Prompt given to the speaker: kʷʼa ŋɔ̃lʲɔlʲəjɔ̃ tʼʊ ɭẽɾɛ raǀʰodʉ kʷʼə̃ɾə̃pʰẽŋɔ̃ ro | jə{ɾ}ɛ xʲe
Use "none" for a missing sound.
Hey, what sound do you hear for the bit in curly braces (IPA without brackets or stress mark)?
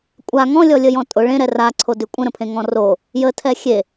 tʰ